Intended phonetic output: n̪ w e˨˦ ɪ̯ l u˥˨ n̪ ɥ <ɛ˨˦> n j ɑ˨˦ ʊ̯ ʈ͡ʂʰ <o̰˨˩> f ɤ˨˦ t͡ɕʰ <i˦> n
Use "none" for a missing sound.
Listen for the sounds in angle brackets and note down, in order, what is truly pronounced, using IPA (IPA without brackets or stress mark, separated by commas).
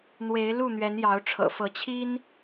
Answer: ɛ˨˦, ɤ̰˨˩, i˦